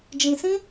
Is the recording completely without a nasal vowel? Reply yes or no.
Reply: no